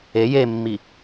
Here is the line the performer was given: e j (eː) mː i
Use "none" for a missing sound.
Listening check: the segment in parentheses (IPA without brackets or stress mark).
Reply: e